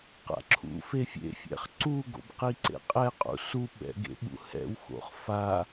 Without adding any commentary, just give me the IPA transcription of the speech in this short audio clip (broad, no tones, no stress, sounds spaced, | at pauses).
q a̰ ǁʰ ṵ f e fʲ ḛ fʲ ɛ̰ χ ǀ u ɡ o̰ b q i ǀ ḛ qʼ ɛ qʼ ṵ s u ɓ ɛ̰ ɡ ḛ ɓ ṵ h ɛ̰ w x o̰ χ f a